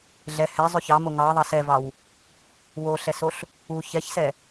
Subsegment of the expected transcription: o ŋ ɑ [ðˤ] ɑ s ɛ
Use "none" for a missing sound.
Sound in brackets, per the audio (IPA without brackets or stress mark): ðˤ